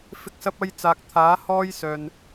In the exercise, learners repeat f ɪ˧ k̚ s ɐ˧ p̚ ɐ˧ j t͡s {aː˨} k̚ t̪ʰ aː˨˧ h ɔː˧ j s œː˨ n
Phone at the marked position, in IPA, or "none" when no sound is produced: aː˨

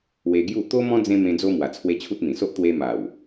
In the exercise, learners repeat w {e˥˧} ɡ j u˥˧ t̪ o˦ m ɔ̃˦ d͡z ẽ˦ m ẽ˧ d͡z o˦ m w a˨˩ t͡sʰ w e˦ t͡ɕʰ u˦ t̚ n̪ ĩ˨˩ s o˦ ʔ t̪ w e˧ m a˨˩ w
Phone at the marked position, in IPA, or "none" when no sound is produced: e˧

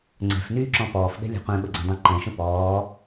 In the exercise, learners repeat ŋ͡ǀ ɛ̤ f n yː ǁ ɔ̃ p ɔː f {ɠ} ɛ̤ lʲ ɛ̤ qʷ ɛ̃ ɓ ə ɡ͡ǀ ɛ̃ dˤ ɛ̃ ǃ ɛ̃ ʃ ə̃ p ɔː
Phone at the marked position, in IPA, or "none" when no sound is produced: ɠ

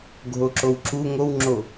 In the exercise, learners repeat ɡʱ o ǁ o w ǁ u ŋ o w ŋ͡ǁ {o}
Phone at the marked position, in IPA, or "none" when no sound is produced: o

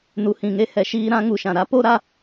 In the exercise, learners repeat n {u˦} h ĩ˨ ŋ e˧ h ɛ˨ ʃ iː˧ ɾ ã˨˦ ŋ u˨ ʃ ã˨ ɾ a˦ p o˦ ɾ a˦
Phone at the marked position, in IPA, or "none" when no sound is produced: u˨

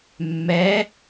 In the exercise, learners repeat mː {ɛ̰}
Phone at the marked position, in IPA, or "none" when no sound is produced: ɛ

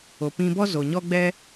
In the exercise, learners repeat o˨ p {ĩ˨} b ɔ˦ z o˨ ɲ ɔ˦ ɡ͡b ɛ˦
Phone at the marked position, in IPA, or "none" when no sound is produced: ĩ˧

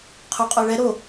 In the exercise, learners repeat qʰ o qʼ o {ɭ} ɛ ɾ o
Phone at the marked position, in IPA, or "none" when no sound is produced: ɭ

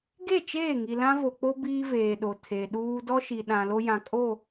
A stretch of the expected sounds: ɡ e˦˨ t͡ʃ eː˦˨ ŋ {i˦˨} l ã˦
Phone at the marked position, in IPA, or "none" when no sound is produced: i˨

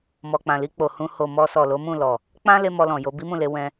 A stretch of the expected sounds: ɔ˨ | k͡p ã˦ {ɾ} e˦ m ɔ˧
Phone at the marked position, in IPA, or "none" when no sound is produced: l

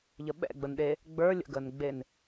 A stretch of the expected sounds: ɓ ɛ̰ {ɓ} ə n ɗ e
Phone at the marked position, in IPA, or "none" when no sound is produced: ɡ͡b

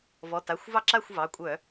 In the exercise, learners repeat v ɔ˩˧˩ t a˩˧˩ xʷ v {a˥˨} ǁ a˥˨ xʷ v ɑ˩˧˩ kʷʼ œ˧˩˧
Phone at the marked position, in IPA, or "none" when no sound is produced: ɑ˥˨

